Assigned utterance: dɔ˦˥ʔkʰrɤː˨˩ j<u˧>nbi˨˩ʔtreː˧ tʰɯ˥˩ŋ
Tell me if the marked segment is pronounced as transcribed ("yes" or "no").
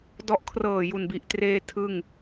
no